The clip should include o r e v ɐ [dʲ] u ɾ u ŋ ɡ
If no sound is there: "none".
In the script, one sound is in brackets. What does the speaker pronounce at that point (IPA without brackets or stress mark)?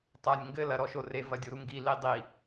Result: dʲ